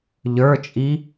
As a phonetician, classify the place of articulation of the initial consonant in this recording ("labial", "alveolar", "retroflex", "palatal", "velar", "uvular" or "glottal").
palatal